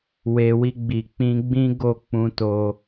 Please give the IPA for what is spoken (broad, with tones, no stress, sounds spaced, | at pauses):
w e˨ w i˧ ɡ͡b i˨ k͡p ĩ˧ ɡ͡b ĩ˦ ɡ o˦˨ k͡p ũ˧ t o˧